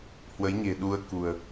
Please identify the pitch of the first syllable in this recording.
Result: rising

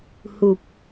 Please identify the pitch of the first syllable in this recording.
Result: low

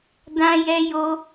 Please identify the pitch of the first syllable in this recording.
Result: high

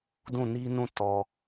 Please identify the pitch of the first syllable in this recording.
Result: falling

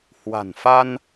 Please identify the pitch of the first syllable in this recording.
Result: low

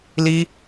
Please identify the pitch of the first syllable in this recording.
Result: high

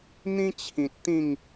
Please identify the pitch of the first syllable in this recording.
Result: high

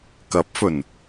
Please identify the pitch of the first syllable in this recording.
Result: rising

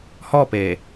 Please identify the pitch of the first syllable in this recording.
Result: falling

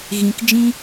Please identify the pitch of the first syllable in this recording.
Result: low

